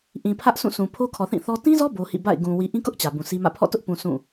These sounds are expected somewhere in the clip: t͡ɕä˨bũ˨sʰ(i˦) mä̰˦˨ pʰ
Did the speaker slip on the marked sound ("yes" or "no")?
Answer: no